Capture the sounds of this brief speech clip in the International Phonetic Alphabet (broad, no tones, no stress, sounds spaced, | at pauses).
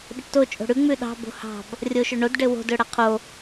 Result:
ɗ ɘ ʈ t o t͡ʃʼ o̤ ɽ ʉ ŋ͡m ʉ ɗ ɑ̤ b o̤ h ɑ̤ b | rʲ o ʃ ɵ ɳ o d ɖ ɘ w o̤ d ɵ ɽ a qʰ o